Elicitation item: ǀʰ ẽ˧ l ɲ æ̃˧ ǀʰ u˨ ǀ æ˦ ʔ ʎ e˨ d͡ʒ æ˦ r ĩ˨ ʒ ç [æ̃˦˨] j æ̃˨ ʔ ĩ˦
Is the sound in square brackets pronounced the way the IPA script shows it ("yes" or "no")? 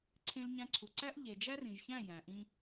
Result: yes